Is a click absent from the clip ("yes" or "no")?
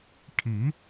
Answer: yes